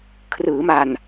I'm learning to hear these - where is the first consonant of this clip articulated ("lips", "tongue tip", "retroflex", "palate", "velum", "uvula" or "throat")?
velum